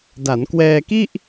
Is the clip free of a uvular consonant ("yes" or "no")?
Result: yes